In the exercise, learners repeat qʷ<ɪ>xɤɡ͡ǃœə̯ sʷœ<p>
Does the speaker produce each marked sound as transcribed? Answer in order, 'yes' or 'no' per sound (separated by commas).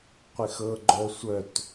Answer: yes, no